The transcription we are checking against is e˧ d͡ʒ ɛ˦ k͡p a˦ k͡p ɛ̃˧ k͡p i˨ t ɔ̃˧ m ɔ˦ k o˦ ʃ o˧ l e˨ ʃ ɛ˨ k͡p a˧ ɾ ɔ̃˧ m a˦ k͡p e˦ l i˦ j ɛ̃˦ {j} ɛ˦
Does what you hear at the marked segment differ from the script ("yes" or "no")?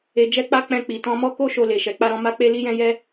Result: no